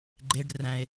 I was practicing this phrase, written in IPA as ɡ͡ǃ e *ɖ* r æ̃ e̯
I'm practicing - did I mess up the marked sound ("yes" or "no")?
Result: no